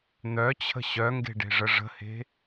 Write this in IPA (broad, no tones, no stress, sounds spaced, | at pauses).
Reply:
n̪ œ t͡ɕʰ ə̤ ɕ œ ŋ ɡ e̤ ɖ e̤ ʐ ə ʐ ə̤ h e̤